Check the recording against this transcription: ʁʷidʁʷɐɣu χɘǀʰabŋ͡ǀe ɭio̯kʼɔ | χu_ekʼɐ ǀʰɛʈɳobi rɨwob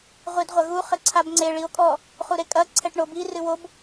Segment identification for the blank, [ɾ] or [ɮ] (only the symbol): ɾ